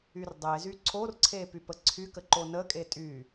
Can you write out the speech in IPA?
y r dˤ e z y ǀʰ o r ǀʰ e p y p ə ǀʰ y k ə ǃ o n ə kʼ e tʼ y

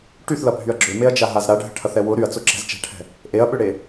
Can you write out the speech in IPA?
ʈ y θ l ɐ bʱ y ɐ̯ ɡ͡ǁ ʏ m e ɐ̯ d͡ʒ a ɦ a z ɾ a ɖʱ ə ʈʰ ɐ θ ɛ w ʊ ɾ y ɐ̯ t͡s ʊ ǁ ɛ̤ z t͡ʃ ɛ̤ ʈʰ ɛ̤ | ʔ e ɐ̯ ɓ ʏ ɽ e

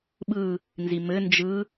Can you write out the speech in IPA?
ɓ ɯ | n z i m ɘ n d͡ʒ ɯ

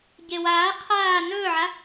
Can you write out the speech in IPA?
ɟ e w aː qʰ aː n ɵː ʕ a

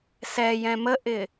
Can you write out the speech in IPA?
s ɛ j ɛ̃ m ə ʔ ɪ

